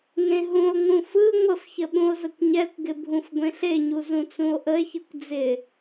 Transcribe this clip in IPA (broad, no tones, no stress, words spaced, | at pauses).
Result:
ŋẽɦũo̯ŋũ fɯ ŋʷəfçə ɓũo̯zəkʷɲɛkʷɡɪ bʱũfɡʷẽɬeɲu zũt͡sũo̯ʔəe̯çɯkʷ d͡zɪ